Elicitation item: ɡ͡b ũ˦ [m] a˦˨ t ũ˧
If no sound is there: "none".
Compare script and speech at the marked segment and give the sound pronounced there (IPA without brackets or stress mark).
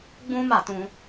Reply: m